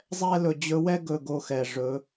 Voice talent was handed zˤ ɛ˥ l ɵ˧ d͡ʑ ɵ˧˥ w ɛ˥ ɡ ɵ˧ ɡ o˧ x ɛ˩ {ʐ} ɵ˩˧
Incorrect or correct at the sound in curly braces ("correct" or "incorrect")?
correct